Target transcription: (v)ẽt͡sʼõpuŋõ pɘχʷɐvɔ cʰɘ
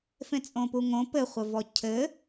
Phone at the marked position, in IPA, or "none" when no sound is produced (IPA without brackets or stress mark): f